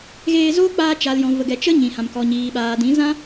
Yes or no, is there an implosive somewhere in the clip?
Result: yes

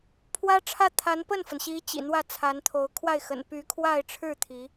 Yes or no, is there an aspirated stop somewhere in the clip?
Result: yes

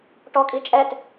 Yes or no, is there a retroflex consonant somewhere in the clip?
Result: yes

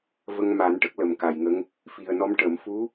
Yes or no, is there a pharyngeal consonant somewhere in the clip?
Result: no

